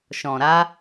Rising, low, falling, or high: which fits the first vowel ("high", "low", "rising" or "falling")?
low